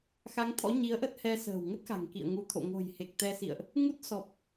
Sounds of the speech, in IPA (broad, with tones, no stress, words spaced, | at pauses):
xa˨˦ŋt̪ʰɔ̰˧˥ ɲi˨˦ə̯ʔə˦˥t̚hɛ˧ sə̤ː˨˩wŋə˦˥t̚xa̤˨˩ŋ kḭ˧˨ə̯ŋu˨˦t̪ʰo̰˧˨ ŋo̤˨˩jhe˨˩k̚t̪ɛ˧sḭ˧˨ə̯ʔ | ŋu˦˥t̚sɔ˨˩p̚